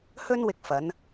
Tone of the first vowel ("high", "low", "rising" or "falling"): high